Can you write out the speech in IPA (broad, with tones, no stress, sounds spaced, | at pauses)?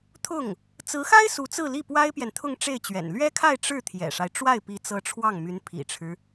t̪ʰ ʊ˥˩ ŋ | t͡s ɹ̩˧˥ x a˥ ɪ̯ s u˧˥ t͡s ɹ̩˥˧ l i˥˩ p w a˥ ɪ̯ p j ɛ˨ n t̪ʰ ʊ˥˧ ŋ ʈ͡ʂ e˥˩ ɪ̯ t͡ɕ ɥ ɛ̰˨˩ n l ɥ ɛ˥ kʰ a˥˧ ɪ̯ ʈ͡ʂ ɻ̩˥˩ t̪ʰ j ɛ̰˨˩ ʂ a˦ ɪ̯ ʈ͡ʂ w a˥˩ ɪ̯ p i˧˥ t͡s ɤ˧˥ ʈ͡ʂʰ w ɑ˥˩ ŋ m y˧˥ n pʰ ḭ˨˩ ʈ͡ʂʰ ɻ̩˦